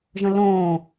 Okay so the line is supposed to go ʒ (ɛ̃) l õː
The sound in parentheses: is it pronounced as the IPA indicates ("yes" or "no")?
no